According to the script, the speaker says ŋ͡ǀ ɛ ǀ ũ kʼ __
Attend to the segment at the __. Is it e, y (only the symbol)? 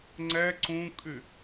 y